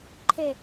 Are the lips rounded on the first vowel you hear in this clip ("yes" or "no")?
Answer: no